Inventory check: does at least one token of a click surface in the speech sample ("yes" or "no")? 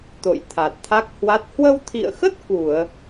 no